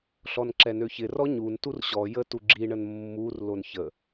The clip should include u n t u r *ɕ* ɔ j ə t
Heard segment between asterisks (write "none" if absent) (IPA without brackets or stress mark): ɕ